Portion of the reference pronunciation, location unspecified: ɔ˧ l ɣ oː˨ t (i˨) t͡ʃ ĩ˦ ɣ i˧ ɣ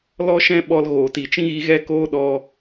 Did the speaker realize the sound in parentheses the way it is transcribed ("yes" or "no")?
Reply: yes